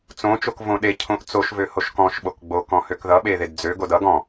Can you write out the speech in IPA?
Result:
t͡sõ t͡ʃokvõɗe cʰõʔt͡soʃ vøhoʃkɔ̃ʃ ɓokɡ͡bo kɔ̃høkðʌ ɓeðedd͡zø ɡodʌ ɡɔ̃

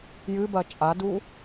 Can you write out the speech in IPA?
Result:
jɨbɐ t͡ʃʼadu

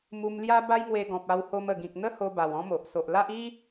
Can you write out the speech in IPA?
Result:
mu˧mlja˦ ba˦jŋwe˧ɡɔ̃˨p̚ a˧who˧mə˨˩ɡĩ˨k̚ n̪ə˦ho˧ ba˨˩wɔ̃˦mo˨ʔ so˨ʔla˦ʔi˦

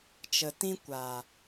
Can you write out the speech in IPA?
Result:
t͡ʃə˨tĩ˦ kʷa˨

